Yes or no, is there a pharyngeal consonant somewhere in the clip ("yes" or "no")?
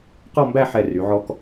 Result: yes